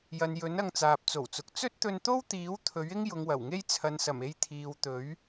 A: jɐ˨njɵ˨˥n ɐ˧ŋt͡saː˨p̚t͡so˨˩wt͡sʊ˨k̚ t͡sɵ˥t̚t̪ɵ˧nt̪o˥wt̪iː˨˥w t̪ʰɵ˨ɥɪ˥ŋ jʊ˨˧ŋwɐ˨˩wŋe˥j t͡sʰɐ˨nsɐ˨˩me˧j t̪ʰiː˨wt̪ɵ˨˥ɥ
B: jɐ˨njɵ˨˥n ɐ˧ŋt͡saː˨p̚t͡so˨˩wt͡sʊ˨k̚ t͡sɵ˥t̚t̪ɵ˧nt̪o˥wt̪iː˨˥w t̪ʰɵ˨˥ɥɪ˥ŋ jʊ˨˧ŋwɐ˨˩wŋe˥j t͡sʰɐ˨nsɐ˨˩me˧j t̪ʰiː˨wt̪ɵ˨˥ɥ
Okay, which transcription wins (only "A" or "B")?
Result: B